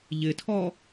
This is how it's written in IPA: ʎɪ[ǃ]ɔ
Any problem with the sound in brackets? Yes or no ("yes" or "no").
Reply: yes